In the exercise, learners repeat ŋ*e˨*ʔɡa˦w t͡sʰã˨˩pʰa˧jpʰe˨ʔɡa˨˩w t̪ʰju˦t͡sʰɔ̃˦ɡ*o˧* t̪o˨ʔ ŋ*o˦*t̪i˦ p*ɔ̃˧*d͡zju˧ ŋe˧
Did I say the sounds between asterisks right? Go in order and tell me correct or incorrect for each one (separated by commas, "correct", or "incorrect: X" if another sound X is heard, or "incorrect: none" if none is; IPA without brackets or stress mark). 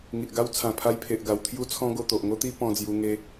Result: incorrect: i˨, correct, correct, correct